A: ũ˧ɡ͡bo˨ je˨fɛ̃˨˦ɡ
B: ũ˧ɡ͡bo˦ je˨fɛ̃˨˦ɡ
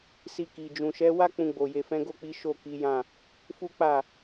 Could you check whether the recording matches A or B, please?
A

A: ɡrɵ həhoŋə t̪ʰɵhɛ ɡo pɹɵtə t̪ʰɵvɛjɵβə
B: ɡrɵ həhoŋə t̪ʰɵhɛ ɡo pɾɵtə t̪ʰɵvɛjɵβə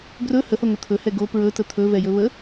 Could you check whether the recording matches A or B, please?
A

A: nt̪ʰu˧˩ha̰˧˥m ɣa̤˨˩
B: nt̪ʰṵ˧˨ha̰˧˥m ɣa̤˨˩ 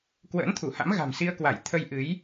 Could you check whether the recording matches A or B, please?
A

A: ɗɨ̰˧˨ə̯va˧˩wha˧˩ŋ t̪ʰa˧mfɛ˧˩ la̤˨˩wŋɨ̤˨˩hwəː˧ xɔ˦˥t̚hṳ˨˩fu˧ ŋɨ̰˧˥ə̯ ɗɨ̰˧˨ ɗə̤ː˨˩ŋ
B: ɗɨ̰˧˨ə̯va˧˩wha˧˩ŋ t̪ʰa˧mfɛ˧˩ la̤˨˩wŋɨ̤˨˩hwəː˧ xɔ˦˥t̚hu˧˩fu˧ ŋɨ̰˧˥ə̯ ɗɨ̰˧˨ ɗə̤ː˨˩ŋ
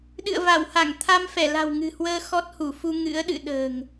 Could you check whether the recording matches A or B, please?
B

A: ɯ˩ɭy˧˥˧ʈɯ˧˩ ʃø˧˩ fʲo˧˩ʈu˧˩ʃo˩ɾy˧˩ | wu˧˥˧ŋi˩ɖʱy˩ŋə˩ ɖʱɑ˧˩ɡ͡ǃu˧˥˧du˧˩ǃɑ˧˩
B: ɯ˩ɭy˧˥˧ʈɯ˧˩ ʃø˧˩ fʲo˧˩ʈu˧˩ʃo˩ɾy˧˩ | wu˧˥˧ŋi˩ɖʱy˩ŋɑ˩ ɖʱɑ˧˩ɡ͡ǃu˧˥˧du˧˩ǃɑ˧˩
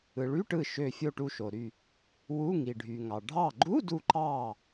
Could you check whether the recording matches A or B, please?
B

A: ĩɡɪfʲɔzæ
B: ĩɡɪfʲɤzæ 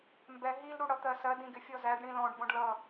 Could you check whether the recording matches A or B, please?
A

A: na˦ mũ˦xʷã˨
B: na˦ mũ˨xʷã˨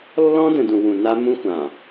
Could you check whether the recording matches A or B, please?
A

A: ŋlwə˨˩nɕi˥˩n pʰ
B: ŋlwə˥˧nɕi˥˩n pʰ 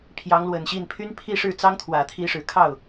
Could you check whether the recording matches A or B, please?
A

